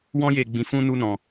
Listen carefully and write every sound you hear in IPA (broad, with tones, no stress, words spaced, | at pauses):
wɔ̃˦je˧ɡ͡bĩ˧ fũ˧nu˧ nɔ̃˧